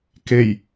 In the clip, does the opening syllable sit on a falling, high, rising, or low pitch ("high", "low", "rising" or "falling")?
low